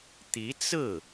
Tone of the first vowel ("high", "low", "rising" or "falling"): rising